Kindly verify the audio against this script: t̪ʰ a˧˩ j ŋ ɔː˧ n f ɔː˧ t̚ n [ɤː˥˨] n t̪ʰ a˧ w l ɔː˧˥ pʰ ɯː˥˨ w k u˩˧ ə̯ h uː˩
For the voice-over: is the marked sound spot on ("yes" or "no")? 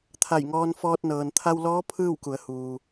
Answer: no